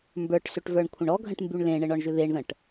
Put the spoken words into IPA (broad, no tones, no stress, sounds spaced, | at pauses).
m b ə˞ ʈ s ʏ ʈ v ə˞ ɳ kʷʰ ə̃ ɳ ɔ ɡʱ ə̃ ʈ m b y ɳ l ẽ ɳ ɘ ɳ ɔ ɳ ʒ ʏ β e ɳ ð ə̃ ʈ